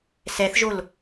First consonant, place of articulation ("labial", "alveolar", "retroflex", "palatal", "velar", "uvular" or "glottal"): alveolar